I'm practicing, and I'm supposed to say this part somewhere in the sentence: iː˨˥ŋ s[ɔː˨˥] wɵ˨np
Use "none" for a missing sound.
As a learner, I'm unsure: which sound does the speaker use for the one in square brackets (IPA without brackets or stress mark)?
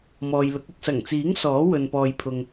ɔː˨˥